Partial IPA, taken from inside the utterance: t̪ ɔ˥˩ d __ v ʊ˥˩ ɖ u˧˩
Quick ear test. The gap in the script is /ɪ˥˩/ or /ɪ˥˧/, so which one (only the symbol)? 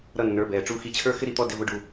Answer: ɪ˥˧